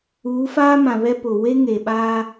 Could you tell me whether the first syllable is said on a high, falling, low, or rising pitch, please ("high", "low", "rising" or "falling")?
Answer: rising